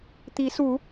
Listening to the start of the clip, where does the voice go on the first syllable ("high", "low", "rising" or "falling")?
rising